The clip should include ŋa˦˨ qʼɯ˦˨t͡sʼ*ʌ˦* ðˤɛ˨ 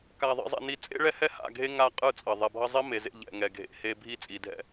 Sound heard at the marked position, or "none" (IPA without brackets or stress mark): ʌ˨